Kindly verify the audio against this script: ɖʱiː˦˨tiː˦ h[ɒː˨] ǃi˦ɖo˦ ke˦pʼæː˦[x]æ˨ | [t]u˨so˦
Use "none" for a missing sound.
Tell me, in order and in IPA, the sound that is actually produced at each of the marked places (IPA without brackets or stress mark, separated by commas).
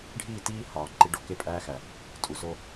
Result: ɒː˨, x, tʼ